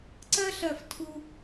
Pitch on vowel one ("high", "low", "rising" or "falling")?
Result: high